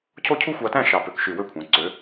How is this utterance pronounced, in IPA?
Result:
cʰ o˥˧ cʰ u˥ xʷ ɑ˧ t æ̃˥˧ ʃ ɑ˧˩ p ø˧˩ k ʃ y˧˩ w ø˥˧ kʷʰ æ̃˩˧ ǀ ø˩˧

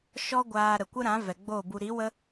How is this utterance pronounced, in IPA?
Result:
ʃ ɔ˦ ɡʷ aː˧ ɾ ə˨ kʷ ə˦ ɾ ã˨˦ v ɛ˨ ɡ͡b o˦˨ b u˧ ɾ i˨˦ w ə˦

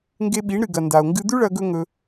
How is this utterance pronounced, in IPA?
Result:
ŋ ɡ e˧ ɓ i˩˥ ɳ ɾ ɨ˩ ɡ ɐ˩ n d a˩ o̯ ŋ ɡ ɨ˧ d̪ ʉ˥ ɭ ɐ˧ ɡ ɵ˥ ŋ ɵ˧

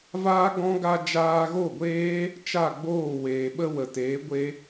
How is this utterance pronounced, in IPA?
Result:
v aː˦ ɡ ɔ̃˦ ɡ a˧ d͡ʒ aː˧ ɣ o˦˨ ɡʷ eː˦ | t͡ʃ a˦˨ ɡ͡b oː˦˨ w eː˨ ɓ ə˦ w ə˨ t eː˨˦ ɡʷ e˦

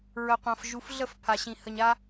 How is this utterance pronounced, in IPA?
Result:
ɹ ə˨ qʷ ã˨ f ʒ u˨ f ɮ ə˦˨ f pʰ a˨ ɕ ĩ˨ h ə˨ ɲ a˦

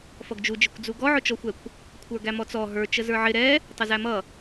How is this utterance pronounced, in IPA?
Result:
f ʌ ɡ d͡ʒ u d͡ʒ ɪ kʷ d͡z u ɡ ɔ ʕ ʊ t͡ʃ ɔ xʷ ɛ kʷ | kʷʰ ə˞ ɡ æ m ɔ t͡s ɔ ɦ ə˞ t͡ʃ ə z ə˞ ʕ ɪ ɾ ɛ | tˤ ə z æ m ʌ

